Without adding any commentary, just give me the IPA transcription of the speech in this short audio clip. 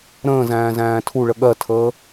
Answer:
ɾ ə̃ː z æ̃ː z æ̃ː tʰ u ɭ ə ɠ ɜ tʰ əː

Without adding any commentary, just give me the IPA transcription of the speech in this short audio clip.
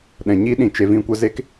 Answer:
ɗ ɛ̃˨ ɲ i˦ ɗ ĩ˨ t͡ʃ e˨ v ĩ˧ kʷ ə˦ z e˦ k

